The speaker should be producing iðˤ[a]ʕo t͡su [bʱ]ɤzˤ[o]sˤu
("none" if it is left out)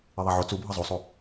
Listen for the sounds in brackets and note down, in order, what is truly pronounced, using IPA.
a, bʱ, u

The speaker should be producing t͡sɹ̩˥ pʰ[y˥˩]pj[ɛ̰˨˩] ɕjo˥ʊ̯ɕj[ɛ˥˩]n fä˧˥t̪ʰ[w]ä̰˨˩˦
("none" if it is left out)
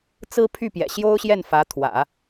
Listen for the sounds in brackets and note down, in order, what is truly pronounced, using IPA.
y˥˩, ɛ̰˨˩, ɛ˥˩, w

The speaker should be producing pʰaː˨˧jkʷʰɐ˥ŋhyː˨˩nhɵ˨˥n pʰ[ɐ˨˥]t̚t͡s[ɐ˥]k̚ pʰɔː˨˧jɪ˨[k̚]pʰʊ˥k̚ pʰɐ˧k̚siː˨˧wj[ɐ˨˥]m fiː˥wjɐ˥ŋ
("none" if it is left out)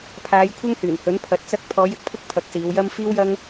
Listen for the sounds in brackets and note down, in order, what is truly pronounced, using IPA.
ɐ˧, ɐ˥, k̚, ɐ˥

